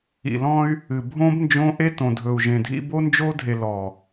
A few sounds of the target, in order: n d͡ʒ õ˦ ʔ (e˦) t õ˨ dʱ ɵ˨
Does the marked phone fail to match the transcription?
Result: no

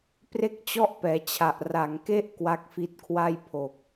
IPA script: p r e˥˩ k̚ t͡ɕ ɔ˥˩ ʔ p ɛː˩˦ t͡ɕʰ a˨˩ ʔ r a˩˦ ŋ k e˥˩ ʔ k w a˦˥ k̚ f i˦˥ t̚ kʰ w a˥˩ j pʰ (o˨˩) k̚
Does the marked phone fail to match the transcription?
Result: no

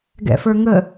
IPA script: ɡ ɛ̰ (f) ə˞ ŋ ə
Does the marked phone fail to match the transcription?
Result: no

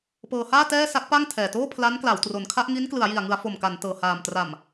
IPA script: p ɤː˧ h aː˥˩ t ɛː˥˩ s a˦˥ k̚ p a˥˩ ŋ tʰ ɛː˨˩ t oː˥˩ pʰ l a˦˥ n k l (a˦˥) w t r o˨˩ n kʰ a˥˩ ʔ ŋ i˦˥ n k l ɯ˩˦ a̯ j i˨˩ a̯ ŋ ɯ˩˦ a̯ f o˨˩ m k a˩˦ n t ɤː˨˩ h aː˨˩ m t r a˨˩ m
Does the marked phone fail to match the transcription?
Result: yes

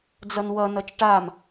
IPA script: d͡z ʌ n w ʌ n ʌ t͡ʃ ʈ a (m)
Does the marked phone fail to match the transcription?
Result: no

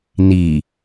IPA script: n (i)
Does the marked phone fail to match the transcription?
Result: no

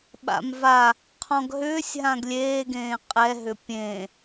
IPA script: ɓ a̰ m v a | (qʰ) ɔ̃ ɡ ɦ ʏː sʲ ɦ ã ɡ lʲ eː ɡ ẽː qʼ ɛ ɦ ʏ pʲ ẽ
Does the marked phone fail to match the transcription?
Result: no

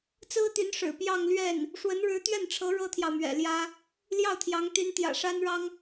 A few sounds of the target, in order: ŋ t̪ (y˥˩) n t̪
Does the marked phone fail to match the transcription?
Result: yes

